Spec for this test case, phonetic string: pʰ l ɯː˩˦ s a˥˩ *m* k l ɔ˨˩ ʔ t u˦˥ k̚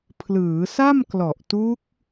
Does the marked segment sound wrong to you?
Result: no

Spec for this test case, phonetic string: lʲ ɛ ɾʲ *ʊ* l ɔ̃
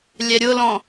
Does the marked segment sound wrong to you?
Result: no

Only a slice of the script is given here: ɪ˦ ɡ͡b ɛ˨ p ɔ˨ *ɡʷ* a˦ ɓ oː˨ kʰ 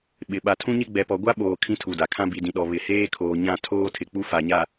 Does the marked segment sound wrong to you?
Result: no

